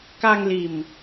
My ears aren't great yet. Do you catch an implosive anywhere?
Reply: no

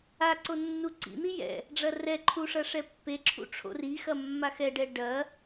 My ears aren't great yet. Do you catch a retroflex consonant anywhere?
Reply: yes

